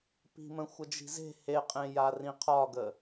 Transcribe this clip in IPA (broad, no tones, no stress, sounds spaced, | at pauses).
p i̤ m ə̃ xʷ ə d͡ʒ i̤ z e̤ h e qʼ ẽ j a r ĩ qʰ ɒ ɡ ə